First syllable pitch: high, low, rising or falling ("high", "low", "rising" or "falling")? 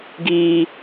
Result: low